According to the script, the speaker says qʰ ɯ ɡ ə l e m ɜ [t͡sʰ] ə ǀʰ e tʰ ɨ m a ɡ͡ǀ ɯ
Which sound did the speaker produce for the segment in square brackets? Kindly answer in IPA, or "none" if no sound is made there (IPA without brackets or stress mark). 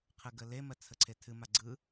t͡sʰ